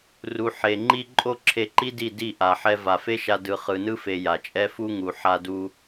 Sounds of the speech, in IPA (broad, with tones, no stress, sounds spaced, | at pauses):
r u˨ ħ e˨ ŋ͡ǃ i˧ ǃʼ o˧ ǁʰ e˧ ǃ i˦ d i˦˨ d i˦˨ ʔ a˨ ħ ɛ˧ v a˨ f e˦ ʃ a˧ d ɯ˨ χ ɯ˨ n ɯ˧ f e˨ j a˨ t͡ʃʼ ɛ˦ f u˦ ŋ u˨ ħ a˧ d u˧